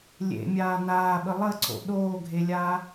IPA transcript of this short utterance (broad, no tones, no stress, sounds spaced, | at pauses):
lʲ ḛ mʲ aː n aː ɓ ə lˠ ə ǀ o̰ ɗ oː ɡʱ e lʲ aː